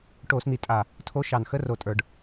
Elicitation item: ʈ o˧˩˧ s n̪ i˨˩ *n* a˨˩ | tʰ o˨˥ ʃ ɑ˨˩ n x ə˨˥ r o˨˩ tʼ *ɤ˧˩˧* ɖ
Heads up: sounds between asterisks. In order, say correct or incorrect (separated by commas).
incorrect, incorrect